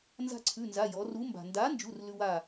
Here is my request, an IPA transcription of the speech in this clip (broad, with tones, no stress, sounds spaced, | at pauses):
n z a̤˦ ǀʰ ʉ˩˧˩ n z a˩˧˩ j ɔ˩˧ r u˨˥ m b a̤˩ n d a˨˥ n d͡ʒ u˩˧˩ r l ʉ˦ w a˥˩